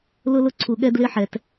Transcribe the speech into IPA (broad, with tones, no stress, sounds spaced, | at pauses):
l ʊ˦ l ʊ˦ ǀʰ u˨ ɠ ɛ˦ d l ɪ˦ ħ ɛ˨ t